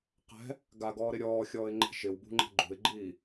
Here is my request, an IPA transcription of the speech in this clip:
qɛ̤ | ɡaɡɔːɾɪ ɾʲɔːxʲɔːɪ̯ŋ͡ǃɛ̤ ʃɪwbṳŋ͡ǃɛ̤ ɡ͡ǃṳɪ̯ɡ͡ǃiː

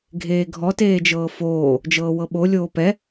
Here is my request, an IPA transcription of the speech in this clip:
ɡʱeːɡʱɔteːd͡ʒɤː foː | d͡ʒɤːwɤɓo lʲoːpɛ

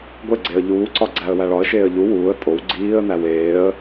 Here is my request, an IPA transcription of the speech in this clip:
ɡʷeɡ͡ǀeə̯ ʎuːǀɒ ɡ͡ǀæə̯wæɭɒə̯ʃeːə̯ ʎu wuːə̯ tʼow ɡ͡ǀiːə̯næw eːə̯

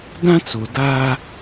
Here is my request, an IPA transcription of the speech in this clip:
dã˦t͡so˨ da˦

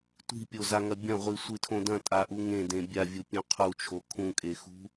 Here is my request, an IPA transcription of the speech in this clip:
tʷi̤pʲozaŋɐ bʲɐ̃ʁʷisʷɨtʰõ dɐ̃tʼaʔu ŋẽdẽ bʲavʲupʲõ qʰut͡ʃʰo kʰũkʼexṳ

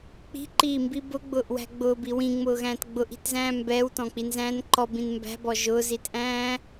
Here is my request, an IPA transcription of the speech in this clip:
k͡pi̤ǃiːmbi bʊɡ͡bʊːʔwæ̤ ɡ͡bʊːbi wĩŋ͡mʊːɣæ̃ːt ɡ͡bʊʔi̤tzæ̃ː mbɛːwtɔ̃k͡pinzæ̃ːn ǃɔbĩn mbæ̤bɔ ʒʊːzitʔæ̃ː

